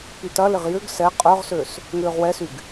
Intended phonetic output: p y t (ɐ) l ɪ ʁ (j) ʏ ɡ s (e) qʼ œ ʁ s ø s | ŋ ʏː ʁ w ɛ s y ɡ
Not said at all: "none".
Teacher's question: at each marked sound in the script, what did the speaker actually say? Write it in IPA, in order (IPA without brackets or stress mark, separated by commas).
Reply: ɐ, j, ɛ